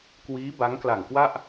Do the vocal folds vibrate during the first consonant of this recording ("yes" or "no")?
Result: no